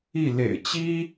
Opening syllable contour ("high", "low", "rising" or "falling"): falling